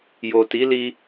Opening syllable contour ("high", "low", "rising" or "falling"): low